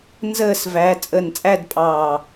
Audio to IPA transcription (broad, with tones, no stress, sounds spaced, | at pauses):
n z əː˧˩ s v æ˩˧ t͡sʼ əː˧˩ n t͡sʼ æ˥˧ d pʼ ɑː˧˩